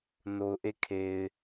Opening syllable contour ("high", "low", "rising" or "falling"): low